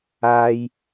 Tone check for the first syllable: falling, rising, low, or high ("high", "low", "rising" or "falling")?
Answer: high